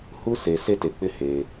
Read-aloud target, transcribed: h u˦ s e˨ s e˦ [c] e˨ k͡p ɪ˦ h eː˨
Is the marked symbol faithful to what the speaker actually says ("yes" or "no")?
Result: no